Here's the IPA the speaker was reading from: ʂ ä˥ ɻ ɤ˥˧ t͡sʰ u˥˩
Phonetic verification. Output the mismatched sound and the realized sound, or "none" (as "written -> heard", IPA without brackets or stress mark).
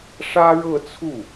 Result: none